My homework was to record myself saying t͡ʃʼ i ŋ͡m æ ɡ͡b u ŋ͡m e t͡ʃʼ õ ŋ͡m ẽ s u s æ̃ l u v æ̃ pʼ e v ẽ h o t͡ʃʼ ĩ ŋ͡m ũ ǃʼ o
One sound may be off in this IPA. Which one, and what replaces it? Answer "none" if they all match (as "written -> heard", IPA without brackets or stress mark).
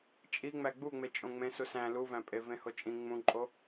none